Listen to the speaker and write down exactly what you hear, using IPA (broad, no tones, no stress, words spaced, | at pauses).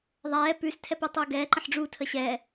ðˤɛː pʉs tʰɛpitˤuɡɛː ǃə̃ħɖ͡ʐu tʰəɕɛː